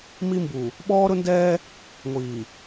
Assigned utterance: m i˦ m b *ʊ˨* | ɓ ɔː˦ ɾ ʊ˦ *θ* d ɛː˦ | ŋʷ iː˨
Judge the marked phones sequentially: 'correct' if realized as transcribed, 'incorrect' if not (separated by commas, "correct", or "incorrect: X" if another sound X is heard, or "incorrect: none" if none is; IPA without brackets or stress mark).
incorrect: u˨, incorrect: n